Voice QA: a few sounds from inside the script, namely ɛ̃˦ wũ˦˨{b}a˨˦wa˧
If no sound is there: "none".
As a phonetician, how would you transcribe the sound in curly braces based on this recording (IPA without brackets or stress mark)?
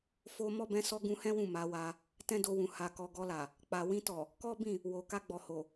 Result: m